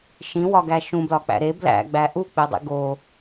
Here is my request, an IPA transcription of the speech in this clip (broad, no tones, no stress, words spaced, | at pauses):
ʃĩwɒɡæ ʃũblɒk͡pæ̰ ɾe blæ̰ɡ͡bæ ʔuk͡pedˤḭ ɡo